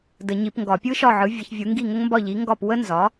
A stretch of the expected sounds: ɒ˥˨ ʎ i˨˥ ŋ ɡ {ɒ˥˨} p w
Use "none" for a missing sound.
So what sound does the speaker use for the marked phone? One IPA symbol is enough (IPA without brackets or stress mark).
ɒ˥˨